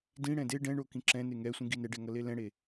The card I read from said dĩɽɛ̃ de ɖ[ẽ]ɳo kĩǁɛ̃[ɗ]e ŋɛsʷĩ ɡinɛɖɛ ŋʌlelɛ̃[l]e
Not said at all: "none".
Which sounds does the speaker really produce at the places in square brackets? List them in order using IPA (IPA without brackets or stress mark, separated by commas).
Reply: ɛ̃, n, ɽ